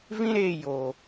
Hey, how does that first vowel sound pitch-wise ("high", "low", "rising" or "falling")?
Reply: high